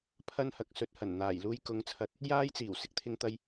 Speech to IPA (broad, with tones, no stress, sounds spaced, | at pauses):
pʰ ɐ˥ n h ɐ˨ k̚ s ɵ˧ t̚ h ɐ˨˩ n n̪ aː˨˩ j l uː˧ j k ʊ˨˥ ŋ t͡sʰ ɐ˨˥ t̚ | j aː˥ j t͡s iː˨˩ w s ɪ˥ k̚ t̪ʰ ɪ˧ ŋ t̪ ɐ˧ j